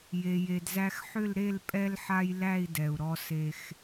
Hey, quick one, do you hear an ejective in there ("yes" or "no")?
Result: yes